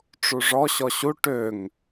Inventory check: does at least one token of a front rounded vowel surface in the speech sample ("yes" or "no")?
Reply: yes